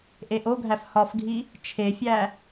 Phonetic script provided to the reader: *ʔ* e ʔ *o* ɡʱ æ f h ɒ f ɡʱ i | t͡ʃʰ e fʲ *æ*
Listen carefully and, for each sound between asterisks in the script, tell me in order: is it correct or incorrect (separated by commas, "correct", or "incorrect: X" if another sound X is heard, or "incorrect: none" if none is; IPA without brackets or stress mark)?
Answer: correct, correct, correct